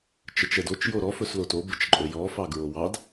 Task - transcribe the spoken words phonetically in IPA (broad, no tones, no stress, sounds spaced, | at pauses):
t͡ʃ ə t͡ʃ ɛ d o t͡ʃ j o ɾ ɔ f ɵ s l o t o b ə t͡ʃ ǃʼ ɵ j ɔ f ɑ ɡ ɹ o w ɑ d